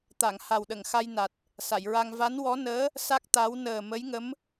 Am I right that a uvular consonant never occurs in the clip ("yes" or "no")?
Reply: yes